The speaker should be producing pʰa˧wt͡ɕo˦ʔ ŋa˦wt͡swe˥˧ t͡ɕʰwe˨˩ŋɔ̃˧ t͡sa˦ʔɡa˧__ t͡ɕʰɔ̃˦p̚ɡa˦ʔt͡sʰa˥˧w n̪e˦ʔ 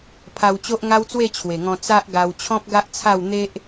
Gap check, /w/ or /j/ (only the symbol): w